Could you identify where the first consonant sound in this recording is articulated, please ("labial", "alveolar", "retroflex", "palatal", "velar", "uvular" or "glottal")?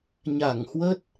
palatal